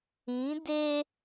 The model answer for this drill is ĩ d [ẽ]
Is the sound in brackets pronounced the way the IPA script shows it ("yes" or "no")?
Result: no